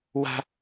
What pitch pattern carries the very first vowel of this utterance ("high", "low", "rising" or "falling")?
high